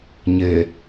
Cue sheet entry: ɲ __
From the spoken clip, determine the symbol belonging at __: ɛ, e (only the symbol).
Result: e